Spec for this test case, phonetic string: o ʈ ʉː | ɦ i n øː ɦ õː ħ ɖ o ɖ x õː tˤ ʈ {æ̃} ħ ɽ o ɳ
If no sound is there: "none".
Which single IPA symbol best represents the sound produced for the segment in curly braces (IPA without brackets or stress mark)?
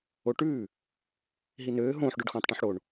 ɛ̃